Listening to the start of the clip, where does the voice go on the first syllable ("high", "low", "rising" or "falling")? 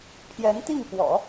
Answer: rising